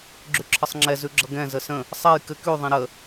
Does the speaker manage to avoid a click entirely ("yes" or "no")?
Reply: no